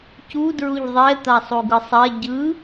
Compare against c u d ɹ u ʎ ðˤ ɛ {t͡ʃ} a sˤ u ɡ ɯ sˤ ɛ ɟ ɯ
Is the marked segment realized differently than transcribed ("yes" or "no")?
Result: yes